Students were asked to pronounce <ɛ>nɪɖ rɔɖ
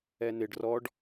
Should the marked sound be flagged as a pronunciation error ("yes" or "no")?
no